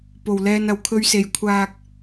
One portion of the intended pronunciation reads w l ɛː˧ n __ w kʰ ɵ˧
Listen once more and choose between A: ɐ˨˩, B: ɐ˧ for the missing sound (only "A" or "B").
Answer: A